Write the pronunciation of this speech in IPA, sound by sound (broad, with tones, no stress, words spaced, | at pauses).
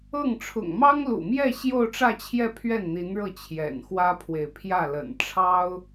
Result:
ɤ˥˩ŋ ʈ͡ʂʰʊ̰˨˩ŋmɑ˥ŋlṵ˨˩mjɛ˥˧ ɕjo˥˧ʊ̯ʈ͡ʂä˥˧t͡ɕʰjɛ˥˧ pʰɥɛ˥˩nn̪i˧˥nɻɤ˥˩ t͡ɕʰjɛ̰˨˩n xwä˥pʰwe˨ɪ̯ pʰjä˥˩lə̰˨˩n ʈ͡ʂʰɑ˥ʊ̯